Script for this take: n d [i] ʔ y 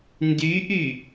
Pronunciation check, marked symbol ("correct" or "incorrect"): incorrect